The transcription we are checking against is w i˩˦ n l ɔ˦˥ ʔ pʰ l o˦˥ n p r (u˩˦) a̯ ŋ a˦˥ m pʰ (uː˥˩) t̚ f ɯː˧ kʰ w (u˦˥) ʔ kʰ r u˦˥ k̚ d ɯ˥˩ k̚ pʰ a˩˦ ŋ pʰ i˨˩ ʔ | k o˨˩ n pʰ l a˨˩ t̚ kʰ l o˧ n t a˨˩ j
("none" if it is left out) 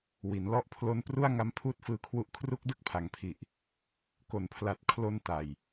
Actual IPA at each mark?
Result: u˥˩, uː˥˩, u˦˥

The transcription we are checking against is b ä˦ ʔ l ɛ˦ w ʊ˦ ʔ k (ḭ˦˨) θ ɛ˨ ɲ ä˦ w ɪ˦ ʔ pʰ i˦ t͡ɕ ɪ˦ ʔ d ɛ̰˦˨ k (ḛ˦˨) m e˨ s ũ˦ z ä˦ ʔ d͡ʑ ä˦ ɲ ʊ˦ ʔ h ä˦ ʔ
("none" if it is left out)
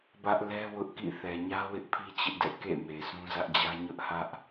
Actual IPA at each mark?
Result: ḭ˦˨, ḛ˦˨

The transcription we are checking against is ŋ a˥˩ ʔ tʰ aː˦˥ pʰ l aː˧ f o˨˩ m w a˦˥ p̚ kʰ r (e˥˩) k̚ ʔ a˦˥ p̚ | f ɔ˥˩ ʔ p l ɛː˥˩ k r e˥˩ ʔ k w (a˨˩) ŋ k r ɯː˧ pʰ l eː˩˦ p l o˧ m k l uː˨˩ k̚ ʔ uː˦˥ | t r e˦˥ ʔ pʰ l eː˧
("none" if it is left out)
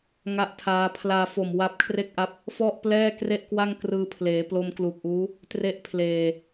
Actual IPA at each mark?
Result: e˥˩, a˥˩

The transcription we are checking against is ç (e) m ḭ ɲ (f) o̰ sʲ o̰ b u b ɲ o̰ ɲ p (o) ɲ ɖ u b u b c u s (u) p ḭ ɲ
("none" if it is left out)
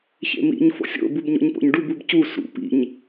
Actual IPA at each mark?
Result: ḛ, f, o̰, ṵ

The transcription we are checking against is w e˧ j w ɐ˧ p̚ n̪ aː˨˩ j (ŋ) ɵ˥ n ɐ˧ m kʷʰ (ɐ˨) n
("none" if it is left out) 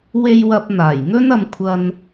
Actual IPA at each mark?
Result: ŋ, ɐ˧

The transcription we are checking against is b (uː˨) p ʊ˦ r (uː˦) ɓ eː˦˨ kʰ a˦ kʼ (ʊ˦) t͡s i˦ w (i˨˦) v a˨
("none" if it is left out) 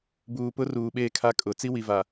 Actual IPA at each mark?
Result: uː˨, uː˨, ʊ˨, i˨

